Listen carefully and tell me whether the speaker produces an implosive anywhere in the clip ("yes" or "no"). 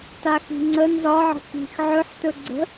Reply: no